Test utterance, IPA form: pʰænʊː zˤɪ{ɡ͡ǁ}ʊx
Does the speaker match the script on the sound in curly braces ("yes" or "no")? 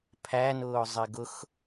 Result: no